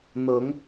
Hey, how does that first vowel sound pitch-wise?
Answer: rising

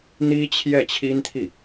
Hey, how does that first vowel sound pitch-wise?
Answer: high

